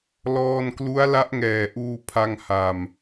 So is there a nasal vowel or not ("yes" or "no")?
no